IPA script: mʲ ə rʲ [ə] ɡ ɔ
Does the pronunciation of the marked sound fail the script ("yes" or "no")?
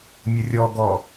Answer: yes